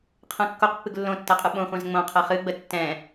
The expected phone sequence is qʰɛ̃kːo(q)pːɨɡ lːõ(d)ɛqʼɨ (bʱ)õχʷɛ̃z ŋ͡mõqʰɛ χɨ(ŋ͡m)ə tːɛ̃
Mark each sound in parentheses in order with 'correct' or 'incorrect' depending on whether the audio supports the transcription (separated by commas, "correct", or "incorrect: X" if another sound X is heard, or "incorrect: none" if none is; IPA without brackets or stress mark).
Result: correct, incorrect: tː, incorrect: ɓ, incorrect: ɡ͡b